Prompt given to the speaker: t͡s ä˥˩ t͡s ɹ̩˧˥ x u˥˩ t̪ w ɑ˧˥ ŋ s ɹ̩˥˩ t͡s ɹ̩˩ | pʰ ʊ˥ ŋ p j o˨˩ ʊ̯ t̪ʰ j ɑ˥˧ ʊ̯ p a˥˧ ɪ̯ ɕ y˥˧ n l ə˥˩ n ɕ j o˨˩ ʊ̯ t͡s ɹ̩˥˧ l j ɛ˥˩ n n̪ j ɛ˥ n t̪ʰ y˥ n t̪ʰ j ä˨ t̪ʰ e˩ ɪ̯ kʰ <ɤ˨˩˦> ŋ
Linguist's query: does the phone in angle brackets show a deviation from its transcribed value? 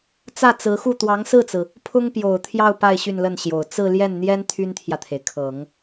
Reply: no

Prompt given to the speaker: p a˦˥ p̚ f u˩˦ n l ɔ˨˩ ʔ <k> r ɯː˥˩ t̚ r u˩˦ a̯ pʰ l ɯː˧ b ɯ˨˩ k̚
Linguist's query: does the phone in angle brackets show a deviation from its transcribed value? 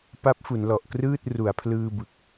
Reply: no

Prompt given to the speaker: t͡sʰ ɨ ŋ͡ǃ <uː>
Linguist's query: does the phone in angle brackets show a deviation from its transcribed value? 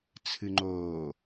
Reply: yes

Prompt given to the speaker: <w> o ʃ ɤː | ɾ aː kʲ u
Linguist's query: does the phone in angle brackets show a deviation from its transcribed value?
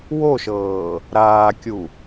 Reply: no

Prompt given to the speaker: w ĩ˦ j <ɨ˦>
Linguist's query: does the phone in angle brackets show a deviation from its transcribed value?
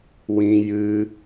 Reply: no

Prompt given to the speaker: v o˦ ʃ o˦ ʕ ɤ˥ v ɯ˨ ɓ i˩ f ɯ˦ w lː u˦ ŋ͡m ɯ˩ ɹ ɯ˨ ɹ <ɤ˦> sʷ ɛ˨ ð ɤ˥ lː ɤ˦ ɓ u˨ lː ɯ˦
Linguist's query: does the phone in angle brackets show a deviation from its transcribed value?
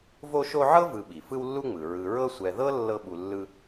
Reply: no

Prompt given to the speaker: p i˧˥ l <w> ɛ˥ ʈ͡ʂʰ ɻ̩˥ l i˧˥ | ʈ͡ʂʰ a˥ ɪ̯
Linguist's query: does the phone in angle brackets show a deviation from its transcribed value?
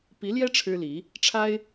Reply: yes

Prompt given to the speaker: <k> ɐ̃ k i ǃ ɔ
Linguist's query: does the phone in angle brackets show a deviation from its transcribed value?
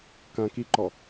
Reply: no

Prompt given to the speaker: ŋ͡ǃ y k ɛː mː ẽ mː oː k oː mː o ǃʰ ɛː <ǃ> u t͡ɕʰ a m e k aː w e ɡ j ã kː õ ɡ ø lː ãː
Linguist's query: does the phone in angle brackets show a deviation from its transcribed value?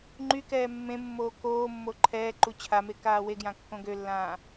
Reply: no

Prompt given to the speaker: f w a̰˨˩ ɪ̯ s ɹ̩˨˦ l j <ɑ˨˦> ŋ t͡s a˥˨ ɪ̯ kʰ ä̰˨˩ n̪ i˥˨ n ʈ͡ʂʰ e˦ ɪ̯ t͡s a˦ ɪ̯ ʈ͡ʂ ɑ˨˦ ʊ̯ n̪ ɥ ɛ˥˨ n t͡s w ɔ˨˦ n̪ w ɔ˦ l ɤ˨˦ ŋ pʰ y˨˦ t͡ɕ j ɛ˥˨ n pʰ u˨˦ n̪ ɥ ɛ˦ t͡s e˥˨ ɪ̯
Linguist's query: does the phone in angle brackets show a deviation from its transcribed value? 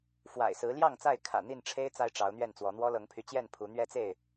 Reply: yes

